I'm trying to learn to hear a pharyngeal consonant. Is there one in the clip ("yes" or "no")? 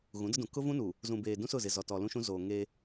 no